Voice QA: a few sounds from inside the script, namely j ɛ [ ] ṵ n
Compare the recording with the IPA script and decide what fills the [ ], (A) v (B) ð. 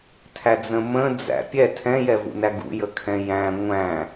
A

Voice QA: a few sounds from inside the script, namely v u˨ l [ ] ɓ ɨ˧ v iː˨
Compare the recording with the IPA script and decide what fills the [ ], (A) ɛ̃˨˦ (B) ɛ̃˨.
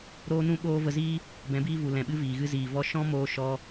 B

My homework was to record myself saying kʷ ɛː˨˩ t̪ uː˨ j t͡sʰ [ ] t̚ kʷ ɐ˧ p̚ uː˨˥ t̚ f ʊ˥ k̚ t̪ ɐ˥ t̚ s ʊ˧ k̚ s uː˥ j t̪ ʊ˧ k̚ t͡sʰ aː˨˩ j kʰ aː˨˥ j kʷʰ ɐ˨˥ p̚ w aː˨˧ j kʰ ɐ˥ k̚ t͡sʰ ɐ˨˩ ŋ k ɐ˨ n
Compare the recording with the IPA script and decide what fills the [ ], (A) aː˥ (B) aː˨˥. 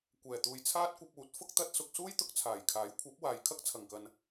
A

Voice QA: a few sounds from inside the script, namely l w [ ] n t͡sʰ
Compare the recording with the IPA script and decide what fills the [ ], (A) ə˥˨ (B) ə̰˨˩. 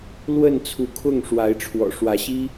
A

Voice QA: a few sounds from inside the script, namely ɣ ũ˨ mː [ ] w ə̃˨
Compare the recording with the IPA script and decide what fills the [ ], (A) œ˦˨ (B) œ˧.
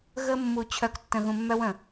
B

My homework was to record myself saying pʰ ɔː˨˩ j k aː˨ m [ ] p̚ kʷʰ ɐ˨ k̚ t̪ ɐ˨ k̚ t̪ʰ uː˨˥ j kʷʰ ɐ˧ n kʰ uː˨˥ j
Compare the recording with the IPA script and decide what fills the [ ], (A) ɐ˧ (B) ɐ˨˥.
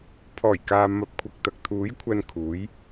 B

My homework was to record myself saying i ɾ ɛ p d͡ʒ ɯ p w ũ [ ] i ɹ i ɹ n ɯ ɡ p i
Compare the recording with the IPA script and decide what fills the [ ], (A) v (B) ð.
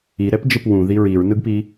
B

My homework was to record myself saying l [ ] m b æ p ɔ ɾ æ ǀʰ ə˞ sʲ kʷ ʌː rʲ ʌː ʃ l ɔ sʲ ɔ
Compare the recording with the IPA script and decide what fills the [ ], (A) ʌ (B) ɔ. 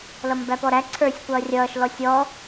A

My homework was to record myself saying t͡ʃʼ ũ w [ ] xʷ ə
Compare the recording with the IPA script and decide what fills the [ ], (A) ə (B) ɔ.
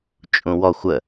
B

